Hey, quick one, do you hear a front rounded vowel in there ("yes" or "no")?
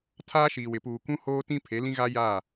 no